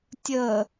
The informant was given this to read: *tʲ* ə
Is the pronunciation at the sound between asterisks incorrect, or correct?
correct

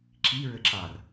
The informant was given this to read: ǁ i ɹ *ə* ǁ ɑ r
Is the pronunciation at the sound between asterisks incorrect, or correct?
correct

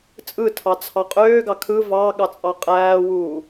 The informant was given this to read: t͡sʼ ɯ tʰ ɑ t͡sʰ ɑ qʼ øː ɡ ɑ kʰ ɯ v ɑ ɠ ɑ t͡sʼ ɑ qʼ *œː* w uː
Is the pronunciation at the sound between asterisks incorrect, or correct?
incorrect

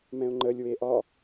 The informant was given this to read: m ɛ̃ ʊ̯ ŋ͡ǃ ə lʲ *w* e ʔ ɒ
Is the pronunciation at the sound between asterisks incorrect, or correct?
correct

